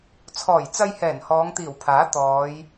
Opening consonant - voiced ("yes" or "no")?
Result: no